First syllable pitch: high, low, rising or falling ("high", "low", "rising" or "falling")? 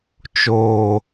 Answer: low